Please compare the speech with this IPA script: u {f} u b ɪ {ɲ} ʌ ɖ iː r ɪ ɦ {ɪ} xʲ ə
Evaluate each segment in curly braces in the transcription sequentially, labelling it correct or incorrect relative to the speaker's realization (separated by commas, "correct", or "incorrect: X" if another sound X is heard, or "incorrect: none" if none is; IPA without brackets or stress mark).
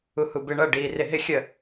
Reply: incorrect: h, incorrect: ɳ, correct